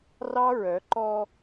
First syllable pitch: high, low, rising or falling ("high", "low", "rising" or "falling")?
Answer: high